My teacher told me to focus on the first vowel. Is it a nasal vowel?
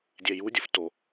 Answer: no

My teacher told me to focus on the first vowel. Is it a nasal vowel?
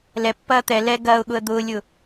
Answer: no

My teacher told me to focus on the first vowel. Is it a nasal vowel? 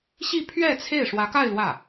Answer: no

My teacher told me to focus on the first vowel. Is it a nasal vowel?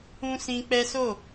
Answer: yes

